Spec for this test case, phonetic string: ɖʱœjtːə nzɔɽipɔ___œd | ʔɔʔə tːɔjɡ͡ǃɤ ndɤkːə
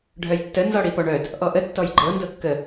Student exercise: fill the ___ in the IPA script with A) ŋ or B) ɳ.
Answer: B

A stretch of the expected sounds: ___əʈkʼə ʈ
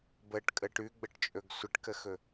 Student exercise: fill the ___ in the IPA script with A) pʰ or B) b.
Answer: B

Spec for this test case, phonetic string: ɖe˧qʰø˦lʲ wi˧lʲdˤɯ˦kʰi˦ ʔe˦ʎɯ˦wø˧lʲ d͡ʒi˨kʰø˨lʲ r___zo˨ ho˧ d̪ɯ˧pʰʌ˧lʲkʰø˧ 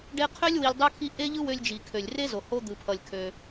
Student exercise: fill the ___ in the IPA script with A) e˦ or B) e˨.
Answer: A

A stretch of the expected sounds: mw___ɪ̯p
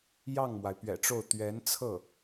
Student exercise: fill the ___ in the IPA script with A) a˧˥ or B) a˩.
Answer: B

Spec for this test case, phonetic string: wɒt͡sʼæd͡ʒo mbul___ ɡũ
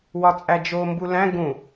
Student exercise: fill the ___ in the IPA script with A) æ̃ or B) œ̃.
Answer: A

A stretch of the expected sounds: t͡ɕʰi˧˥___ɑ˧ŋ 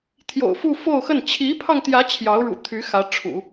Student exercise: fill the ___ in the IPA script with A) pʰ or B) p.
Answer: A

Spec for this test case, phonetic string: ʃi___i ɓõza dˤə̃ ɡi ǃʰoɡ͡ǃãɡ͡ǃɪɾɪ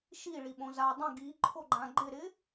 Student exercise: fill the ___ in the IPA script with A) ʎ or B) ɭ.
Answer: B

